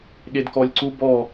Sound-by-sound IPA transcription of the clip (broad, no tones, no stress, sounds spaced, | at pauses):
ɠ e d k ɔ lʲ ǀ u b ɔ